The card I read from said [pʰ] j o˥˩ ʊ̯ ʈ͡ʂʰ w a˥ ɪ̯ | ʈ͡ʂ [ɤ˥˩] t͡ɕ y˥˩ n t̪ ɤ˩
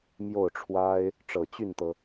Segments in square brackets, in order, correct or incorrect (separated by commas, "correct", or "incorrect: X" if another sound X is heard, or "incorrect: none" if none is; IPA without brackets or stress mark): incorrect: m, incorrect: ɤ˨˩